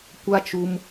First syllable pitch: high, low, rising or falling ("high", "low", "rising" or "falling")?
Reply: high